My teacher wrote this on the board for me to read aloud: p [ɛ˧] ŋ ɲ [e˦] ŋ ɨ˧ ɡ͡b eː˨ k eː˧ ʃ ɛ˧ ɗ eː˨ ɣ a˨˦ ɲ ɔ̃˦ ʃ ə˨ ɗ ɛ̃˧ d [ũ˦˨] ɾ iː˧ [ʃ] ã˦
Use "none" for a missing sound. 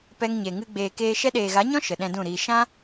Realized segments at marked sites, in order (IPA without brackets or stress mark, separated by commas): ɛ˧, e˨, ũ˦˨, ʃ